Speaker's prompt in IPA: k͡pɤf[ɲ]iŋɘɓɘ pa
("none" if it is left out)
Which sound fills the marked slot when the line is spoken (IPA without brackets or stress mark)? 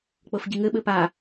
ɟ